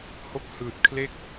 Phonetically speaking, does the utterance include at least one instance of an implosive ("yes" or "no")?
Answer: no